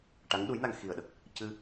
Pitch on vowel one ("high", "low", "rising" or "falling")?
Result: rising